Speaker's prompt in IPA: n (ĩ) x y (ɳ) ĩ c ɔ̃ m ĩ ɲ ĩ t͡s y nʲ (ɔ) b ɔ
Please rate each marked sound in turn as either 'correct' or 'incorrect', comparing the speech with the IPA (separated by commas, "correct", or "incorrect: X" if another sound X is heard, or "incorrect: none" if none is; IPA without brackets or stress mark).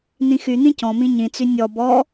correct, incorrect: n̪, correct